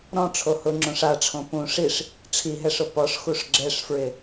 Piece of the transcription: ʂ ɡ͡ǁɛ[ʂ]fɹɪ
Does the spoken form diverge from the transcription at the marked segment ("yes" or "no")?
no